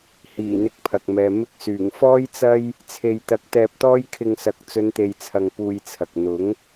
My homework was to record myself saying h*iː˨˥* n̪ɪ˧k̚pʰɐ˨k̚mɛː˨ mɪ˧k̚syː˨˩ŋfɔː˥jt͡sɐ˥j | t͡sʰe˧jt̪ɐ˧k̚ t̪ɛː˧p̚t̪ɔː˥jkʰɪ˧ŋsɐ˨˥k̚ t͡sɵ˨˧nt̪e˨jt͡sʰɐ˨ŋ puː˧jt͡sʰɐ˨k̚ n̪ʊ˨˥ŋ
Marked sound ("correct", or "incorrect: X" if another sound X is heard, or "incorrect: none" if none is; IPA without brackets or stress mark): incorrect: iː˨˩